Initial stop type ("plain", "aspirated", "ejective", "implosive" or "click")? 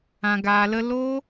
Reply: plain